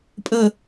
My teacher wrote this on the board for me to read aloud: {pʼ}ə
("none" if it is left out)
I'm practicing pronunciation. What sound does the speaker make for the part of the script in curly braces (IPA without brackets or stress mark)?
pʼ